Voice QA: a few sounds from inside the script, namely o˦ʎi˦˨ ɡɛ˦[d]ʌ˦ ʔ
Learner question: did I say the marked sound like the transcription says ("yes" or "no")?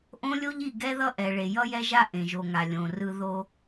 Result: no